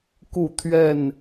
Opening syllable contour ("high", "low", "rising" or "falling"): falling